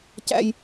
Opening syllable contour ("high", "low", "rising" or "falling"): high